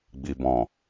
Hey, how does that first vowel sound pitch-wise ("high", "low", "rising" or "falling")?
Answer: low